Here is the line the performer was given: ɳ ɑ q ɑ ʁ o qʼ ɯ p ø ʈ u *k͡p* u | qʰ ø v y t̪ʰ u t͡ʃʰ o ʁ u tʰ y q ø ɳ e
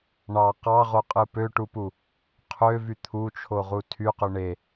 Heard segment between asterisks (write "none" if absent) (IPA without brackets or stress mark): p